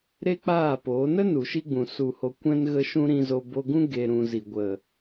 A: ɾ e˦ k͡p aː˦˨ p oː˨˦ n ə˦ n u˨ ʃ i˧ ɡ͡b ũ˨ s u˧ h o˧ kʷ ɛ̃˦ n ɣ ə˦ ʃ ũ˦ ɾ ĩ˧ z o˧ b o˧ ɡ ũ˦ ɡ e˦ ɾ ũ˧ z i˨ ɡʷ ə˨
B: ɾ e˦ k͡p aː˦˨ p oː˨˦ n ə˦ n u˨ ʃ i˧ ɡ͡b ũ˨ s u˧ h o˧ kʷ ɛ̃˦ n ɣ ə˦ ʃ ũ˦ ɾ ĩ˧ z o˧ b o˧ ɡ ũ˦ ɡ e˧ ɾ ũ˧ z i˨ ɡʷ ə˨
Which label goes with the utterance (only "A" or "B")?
B